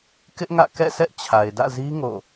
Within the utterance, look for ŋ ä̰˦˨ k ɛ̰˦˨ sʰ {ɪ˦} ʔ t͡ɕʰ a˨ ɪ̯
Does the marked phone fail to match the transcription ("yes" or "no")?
yes